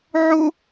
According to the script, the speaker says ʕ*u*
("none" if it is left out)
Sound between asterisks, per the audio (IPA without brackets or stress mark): o